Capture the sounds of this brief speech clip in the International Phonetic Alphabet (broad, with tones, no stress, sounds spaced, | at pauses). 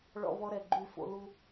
ɭ ɔ̰˧ β ɔ˧ ɾ ɛ˨ ɡ͡ǃ y˦˨ f o̰˦ l u˦